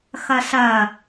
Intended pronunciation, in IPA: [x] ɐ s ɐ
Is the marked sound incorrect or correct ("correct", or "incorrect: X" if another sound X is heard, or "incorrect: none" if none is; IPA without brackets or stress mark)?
correct